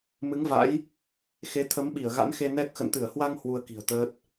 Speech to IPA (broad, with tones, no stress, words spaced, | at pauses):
mɨ˨˦ŋva̰˧˥j | xe˨˦ t̪ʰə˨˦mɓi˧˩ə̯ ɣa̰˧˥nxe˧ nɛ˦˥k̚ xə̰˧˨nt̪ɨ˧˩ə̯hwa˧ŋ hwu˧ə̯ki̤˨˩ə̯t̪əː˦˥t̚